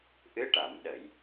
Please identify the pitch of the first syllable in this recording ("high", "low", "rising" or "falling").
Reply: rising